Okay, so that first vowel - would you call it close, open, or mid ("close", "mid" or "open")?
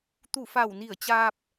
close